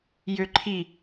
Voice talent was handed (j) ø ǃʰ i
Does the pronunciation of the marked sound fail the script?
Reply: no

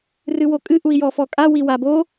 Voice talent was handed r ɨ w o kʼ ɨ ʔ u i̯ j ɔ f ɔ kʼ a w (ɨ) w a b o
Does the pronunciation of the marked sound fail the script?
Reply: yes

